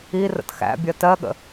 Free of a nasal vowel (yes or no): yes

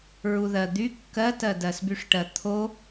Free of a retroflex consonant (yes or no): no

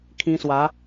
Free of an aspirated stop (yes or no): no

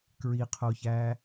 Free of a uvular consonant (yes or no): no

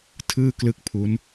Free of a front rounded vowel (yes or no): yes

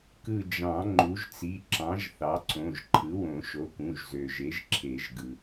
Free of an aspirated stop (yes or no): no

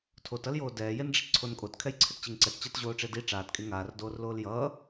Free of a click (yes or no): no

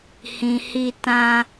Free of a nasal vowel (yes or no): no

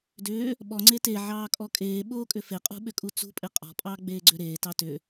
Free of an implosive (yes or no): no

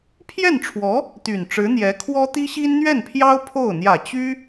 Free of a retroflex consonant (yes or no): no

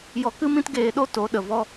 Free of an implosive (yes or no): no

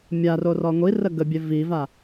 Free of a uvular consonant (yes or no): yes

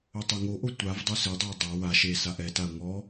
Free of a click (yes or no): yes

